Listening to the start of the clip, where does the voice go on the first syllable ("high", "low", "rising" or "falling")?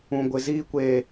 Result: low